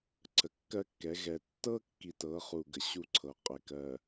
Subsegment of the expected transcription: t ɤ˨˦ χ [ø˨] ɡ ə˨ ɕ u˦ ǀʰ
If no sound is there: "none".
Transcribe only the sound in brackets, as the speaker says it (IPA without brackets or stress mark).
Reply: u˨